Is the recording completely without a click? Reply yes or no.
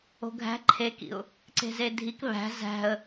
no